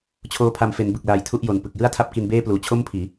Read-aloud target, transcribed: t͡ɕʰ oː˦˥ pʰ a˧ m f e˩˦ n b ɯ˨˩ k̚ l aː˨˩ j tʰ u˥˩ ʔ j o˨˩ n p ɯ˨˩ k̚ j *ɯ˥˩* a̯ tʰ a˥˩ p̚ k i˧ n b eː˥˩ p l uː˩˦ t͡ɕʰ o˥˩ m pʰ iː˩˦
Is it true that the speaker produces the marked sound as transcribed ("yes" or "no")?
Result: yes